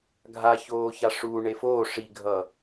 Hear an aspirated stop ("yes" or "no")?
no